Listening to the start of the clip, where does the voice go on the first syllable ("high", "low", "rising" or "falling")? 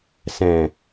low